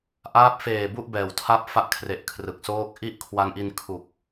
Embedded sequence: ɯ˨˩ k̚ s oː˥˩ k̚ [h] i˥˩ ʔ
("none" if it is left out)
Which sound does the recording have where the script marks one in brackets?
ʔ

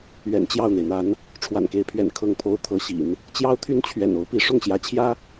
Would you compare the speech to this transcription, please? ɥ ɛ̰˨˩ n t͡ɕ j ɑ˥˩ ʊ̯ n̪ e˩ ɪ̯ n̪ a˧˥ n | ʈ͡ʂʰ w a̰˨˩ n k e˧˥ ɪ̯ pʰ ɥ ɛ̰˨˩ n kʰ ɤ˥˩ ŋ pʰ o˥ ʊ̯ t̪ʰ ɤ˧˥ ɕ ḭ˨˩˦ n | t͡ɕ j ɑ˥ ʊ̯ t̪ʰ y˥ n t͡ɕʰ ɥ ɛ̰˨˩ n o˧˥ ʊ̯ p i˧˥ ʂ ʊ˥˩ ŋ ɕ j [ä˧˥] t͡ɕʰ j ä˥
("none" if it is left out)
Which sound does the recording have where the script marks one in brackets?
ä˧˥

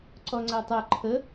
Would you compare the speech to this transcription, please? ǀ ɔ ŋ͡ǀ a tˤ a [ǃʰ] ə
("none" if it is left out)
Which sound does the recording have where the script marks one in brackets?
ǃʰ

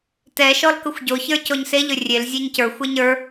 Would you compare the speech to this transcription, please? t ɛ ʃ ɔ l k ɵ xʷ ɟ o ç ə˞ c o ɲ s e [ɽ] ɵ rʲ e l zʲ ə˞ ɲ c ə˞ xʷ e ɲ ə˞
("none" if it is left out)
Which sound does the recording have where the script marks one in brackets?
ʎ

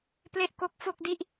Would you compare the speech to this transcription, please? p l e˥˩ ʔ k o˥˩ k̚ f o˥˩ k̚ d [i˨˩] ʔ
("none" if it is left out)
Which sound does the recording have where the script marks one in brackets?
i˥˩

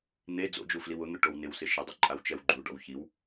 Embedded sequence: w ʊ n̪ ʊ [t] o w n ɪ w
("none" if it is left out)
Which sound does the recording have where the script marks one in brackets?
ʈ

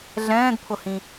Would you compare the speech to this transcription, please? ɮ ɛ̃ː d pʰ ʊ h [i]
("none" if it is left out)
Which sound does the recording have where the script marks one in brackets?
ĩ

